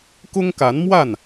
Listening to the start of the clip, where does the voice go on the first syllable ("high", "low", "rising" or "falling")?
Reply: high